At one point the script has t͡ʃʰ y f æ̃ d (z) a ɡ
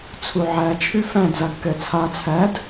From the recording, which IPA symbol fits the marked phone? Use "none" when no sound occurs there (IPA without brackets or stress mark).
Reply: z